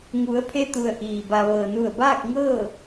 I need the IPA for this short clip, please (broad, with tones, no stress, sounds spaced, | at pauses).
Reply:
ŋ u˩˧ ə̯ pʰ e˧ t̪ u˩ ə̯ ʔ iː˩ b a˩ ʋ ɤː˩ n u˧˩ ə̯ b aː˥˨ k̚ ŋ ɤː˥˨